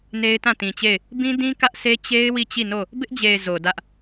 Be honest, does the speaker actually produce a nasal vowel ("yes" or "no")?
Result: yes